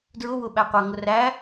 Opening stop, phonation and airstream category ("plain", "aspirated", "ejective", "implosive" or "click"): plain